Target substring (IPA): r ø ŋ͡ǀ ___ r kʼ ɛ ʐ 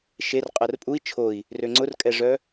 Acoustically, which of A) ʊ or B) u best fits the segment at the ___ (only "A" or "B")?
A